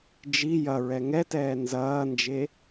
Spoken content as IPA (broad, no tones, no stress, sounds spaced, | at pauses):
d͡ʒ i j ɐ ɹ ɛ ŋ ɛ t ɛː n z ɐː n d͡ʒ e